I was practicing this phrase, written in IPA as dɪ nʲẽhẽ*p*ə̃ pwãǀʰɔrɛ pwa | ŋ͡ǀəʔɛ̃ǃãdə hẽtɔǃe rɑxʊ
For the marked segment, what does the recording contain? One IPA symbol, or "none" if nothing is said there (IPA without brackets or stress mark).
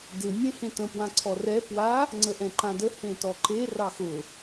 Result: t